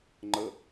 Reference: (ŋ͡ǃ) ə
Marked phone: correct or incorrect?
correct